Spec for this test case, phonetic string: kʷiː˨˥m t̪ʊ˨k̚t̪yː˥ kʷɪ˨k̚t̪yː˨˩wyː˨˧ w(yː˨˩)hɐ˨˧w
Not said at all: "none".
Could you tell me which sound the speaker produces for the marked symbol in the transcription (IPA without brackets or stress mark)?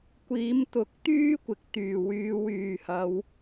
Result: yː˨˩